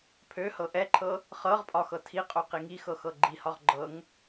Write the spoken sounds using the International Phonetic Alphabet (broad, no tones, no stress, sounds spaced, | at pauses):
pʰ ø h ɤ ʔ ɛ ǃʰ ɤ | χ ɤ ʁ pʼ ɒ x ɤ tʰ i qʼ o q i ŋ i x ɤ x ɤ ɡ͡ǃ i h ɒ ʁ ɡ͡ǃ ɤ ŋ